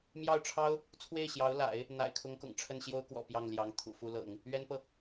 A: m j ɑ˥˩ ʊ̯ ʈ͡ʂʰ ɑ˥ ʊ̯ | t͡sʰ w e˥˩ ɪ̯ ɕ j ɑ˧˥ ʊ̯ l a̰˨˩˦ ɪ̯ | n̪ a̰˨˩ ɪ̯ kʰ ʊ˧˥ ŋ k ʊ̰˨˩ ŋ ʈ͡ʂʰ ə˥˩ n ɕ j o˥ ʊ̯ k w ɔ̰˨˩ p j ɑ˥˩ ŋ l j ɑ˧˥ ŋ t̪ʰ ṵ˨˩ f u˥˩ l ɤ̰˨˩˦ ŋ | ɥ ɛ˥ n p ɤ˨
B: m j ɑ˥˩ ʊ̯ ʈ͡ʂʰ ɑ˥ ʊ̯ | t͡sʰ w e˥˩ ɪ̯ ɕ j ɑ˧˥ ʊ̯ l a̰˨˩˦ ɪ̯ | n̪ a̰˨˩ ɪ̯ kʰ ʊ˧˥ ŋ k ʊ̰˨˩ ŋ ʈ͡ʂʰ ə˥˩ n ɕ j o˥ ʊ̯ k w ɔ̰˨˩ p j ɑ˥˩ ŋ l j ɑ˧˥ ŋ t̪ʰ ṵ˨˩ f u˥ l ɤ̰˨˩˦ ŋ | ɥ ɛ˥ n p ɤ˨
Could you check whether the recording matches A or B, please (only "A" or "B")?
B